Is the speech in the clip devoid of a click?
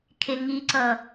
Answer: no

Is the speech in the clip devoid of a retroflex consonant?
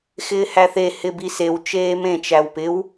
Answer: yes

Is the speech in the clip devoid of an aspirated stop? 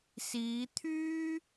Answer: no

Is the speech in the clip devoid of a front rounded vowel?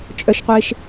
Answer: no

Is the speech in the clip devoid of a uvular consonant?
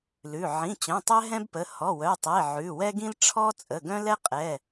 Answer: no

